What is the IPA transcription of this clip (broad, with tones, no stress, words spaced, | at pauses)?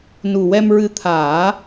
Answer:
nu˨˩wɛ˧mɹɨ˧ t̪ʰaː˨˩˦